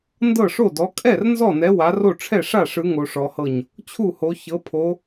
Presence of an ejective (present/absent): present